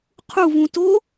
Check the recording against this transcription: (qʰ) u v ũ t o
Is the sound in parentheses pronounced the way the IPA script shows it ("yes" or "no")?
yes